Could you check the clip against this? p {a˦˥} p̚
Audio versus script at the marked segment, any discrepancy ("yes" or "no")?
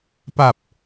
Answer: yes